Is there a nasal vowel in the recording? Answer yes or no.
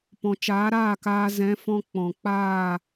yes